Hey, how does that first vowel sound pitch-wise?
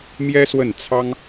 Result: high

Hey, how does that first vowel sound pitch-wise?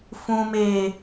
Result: low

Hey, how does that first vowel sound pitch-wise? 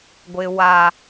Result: low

